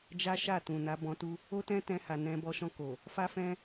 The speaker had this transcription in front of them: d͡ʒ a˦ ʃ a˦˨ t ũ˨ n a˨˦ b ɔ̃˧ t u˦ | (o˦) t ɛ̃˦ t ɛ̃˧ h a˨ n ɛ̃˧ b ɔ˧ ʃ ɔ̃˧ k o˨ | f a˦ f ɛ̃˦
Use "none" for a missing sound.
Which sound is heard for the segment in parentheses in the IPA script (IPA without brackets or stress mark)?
o˦